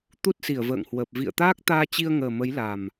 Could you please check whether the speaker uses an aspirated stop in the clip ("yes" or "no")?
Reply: no